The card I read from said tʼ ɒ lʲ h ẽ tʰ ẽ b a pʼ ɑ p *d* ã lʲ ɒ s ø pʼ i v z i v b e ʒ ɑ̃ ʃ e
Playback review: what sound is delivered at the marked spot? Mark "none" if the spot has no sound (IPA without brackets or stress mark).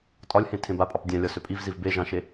dʲ